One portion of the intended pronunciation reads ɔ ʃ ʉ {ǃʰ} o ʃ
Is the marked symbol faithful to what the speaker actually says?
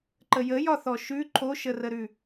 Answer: yes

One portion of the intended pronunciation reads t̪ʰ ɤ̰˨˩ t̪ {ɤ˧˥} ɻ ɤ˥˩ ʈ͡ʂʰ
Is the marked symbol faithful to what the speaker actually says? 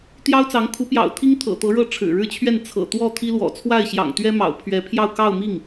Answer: yes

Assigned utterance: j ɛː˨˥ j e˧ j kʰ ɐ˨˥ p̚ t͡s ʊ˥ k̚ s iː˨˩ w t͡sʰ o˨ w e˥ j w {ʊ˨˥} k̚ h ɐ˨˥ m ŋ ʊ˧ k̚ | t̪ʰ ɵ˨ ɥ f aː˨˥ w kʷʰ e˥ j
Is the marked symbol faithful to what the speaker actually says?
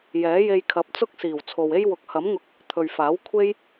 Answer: yes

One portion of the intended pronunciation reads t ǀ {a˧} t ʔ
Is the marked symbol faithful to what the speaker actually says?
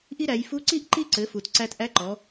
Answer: no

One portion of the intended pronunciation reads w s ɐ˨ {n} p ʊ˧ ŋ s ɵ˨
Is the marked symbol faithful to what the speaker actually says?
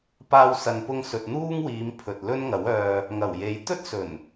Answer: yes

